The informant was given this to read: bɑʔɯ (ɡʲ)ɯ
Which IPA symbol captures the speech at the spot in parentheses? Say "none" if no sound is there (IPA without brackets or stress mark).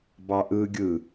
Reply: ɡʲ